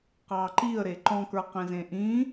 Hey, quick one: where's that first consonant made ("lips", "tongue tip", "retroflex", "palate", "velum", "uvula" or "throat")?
uvula